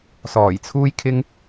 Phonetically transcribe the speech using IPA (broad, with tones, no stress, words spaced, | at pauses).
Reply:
sɔː˨˩jt͡sʰuː˥jkʰɪ˥ŋ